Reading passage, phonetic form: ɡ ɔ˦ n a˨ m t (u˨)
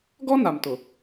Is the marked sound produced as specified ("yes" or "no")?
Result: no